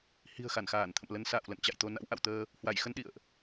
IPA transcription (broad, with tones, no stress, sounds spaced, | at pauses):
h i̤˨˩ ə̯ x a˧˩ n x aː˧˩ n t̪ʰ ə̰˧˨ m l ə˧ n s a̰ː˧˨ w l ə̰˧˨ n t͡ɕ a̰˧˨ j t̪ o˧ n a̰˧˥ w ʔ a̰˧˨ w t̪ əː˧ | h w a˧˩ j x ə˧ n ɗ ḭ˧˨ ə̯ ʔ